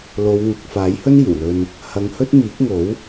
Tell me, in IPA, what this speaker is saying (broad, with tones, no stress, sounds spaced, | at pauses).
l o˨˧ w ŋ ʊ˨ k̚ f aː˨˥ j h ɵ˥ n iː˨˩ w l ɵ˧ n | h ɐ˨˧ ŋ h ɵ˥ t̚ m iː˨˥ k̚ ŋ o˨˥ w